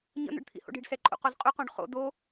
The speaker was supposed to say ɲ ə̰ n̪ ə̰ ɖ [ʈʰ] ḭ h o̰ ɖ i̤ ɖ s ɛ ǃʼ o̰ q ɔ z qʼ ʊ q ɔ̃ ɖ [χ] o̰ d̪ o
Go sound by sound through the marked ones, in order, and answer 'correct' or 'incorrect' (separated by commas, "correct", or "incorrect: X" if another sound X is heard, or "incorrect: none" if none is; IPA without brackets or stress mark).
incorrect: t̪ʰ, correct